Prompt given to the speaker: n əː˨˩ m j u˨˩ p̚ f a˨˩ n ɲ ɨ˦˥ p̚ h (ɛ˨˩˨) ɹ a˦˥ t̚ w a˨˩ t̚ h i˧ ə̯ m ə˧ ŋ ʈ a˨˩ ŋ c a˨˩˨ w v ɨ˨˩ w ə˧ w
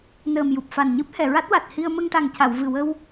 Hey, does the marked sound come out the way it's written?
yes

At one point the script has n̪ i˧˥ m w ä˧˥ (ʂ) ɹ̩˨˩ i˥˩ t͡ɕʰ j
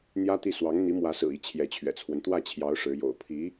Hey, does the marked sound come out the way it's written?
no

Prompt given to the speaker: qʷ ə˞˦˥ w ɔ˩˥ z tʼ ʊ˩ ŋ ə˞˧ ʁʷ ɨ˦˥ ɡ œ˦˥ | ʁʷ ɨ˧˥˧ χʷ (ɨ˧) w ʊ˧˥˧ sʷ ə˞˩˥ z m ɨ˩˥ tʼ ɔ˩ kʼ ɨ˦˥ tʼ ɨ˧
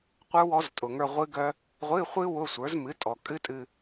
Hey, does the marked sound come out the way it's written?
no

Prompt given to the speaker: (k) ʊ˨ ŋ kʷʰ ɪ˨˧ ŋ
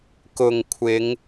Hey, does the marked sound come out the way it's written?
yes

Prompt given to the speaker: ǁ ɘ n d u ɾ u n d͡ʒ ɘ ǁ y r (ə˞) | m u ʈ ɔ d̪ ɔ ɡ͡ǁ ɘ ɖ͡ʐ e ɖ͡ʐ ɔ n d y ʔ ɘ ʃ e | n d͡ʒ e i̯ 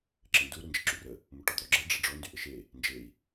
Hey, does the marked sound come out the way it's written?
no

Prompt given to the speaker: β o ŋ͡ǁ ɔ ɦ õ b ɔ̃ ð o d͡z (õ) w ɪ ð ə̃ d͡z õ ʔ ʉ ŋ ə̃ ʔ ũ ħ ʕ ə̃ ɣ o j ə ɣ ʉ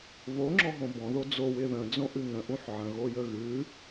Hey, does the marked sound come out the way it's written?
no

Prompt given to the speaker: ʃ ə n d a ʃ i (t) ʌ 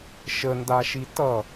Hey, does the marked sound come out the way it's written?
yes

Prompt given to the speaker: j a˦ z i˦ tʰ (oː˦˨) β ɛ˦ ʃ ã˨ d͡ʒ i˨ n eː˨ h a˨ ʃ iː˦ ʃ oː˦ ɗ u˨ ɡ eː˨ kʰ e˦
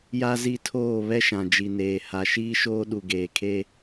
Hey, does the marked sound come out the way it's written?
yes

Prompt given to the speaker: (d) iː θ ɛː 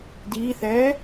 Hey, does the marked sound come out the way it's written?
yes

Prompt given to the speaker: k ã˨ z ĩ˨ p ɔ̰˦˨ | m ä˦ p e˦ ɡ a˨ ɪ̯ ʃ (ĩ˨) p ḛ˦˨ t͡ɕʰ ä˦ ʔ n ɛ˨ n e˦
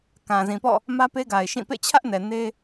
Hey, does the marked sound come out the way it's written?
no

